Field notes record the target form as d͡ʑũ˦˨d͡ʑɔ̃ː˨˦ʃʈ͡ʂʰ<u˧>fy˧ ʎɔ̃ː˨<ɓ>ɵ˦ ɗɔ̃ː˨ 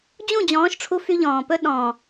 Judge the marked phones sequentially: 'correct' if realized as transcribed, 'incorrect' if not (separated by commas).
correct, incorrect